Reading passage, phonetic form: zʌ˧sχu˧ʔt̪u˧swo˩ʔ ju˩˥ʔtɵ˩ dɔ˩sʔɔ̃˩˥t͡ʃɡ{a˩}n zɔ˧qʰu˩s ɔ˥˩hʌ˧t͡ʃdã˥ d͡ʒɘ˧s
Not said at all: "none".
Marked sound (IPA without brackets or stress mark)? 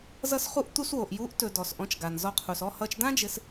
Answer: a˩